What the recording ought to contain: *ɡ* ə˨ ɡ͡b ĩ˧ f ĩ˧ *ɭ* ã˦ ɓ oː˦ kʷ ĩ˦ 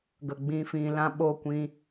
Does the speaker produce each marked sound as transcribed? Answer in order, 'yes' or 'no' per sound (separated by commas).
yes, no